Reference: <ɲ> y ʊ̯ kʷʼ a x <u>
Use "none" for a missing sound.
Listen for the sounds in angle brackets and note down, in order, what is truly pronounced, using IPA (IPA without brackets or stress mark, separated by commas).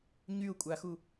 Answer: ɲ, u